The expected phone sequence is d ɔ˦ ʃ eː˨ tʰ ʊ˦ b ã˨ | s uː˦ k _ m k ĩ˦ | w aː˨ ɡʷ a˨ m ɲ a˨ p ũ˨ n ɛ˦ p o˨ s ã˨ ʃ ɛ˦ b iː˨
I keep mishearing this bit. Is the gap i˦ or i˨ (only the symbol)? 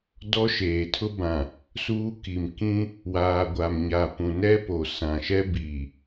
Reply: i˨